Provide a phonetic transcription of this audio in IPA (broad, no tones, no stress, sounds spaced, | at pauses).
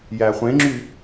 j æ χʷ ẽ ŋ͡ǁ y